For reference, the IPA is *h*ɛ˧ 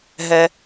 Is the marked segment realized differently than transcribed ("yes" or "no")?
yes